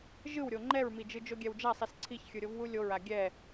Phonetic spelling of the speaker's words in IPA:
ʒ ɯ w ɾʲ o ŋ͡ǃ ɛ ɹ m i d͡ʒ ɯ d͡ʒ o ɡʲ ɛ w d͡ʒ a sˤ i s ǀʰ i ç xʲ ɯ ɾʲ o v w u lʲ o ɹ a ɡʲ ɛ

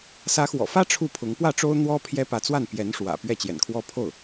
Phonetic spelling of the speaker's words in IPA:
s ä˧˥ x w ɔ̰˨˩ f ä˥ ʈ͡ʂʰ u˥˩ pʰ ʊ˧˥ ŋ p w ä˥˩ ʈ͡ʂ o˥ ʊ̯ n̪ w ɔ˥ pʰ j ɛ˥ p ä˧˥ t͡s w a˥˩ n p j ɛ˧˥ n ʂ w ä̰˨˩ p ɥ ɛ˥˩ t͡ɕ j ɛ̰˨˩ n kʰ w ɔ˥˧ pʰ o˥˩ ʊ̯

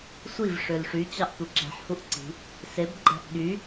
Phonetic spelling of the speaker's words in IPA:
sʷ i v ʂ ø l ʂ y t͡ɕ ɑ ʔ tʷ ɯ ǁ æ̤ ħ h u ʔ ǀ i̤ | s e b ɡ͡ǃ æ̤ ʔ ɠ y

